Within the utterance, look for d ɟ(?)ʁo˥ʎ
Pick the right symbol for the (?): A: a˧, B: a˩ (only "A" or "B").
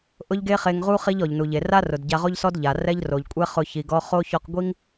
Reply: A